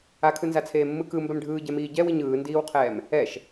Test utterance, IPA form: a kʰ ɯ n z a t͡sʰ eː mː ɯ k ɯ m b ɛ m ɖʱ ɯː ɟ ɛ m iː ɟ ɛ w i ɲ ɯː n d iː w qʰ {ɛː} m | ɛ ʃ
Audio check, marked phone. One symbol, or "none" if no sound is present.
ɛː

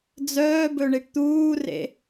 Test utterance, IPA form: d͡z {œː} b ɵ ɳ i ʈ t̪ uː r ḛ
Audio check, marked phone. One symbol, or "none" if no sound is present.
œː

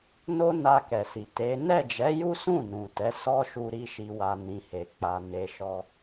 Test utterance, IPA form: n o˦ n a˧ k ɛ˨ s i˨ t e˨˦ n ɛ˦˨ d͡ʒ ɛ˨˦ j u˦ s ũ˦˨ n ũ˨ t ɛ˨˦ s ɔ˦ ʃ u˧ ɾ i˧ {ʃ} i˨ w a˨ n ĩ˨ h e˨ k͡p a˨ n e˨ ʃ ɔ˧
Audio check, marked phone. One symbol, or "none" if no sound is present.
ʃ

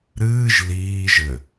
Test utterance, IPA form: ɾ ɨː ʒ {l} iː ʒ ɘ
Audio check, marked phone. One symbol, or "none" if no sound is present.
l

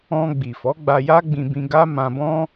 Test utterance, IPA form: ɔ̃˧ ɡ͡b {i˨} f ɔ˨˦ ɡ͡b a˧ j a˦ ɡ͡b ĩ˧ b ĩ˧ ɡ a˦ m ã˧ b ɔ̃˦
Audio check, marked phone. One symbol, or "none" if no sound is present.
i˨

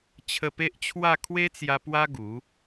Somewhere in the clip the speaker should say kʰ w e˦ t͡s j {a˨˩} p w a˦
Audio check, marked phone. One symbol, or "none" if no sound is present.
a˧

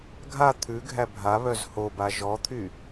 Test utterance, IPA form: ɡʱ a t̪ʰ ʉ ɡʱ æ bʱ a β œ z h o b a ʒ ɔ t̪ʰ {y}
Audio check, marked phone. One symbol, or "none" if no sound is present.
y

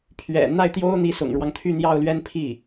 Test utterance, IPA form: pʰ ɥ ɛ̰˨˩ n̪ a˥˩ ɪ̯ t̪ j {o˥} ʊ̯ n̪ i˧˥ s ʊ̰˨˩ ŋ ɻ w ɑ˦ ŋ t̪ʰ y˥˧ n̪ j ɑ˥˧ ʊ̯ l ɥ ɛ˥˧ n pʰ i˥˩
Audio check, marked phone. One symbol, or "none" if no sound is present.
o˥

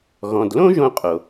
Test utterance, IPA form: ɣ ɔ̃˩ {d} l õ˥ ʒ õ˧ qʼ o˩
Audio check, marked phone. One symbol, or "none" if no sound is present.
d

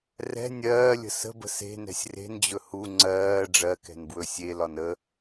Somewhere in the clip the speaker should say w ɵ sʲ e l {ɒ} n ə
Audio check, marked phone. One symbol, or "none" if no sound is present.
ɒ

